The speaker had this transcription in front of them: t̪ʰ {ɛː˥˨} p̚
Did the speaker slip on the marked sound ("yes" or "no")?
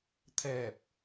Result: yes